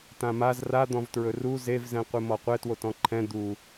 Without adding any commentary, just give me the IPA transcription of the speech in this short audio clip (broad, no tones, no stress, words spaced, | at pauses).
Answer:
tãmaz rad̪ɔ̃vtɹɵ ru zevzɛ̃qʷɨ mɔqʷɛtwot ɔ̃ǃʰɛ̃ d̪u